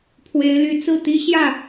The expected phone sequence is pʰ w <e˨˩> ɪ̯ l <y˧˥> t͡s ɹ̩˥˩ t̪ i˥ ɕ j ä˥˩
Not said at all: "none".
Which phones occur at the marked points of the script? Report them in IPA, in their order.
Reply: e˧˥, y˧˥

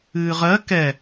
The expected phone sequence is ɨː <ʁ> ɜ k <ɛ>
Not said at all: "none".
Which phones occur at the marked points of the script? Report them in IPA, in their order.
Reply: ʁ, ɛ

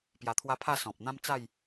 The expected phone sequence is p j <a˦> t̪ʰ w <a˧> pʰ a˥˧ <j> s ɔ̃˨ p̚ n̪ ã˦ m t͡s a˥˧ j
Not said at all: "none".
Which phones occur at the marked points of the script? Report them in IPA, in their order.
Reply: a˧, a˦, none

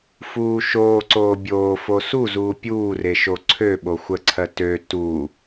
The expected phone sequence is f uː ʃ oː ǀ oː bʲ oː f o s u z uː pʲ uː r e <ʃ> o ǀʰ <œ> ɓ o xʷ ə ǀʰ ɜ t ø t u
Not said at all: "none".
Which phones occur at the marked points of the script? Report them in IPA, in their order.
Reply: ʃ, ø

